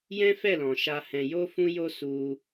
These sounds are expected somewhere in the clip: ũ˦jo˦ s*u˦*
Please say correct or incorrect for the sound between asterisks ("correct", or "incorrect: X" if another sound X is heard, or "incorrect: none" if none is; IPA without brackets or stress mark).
correct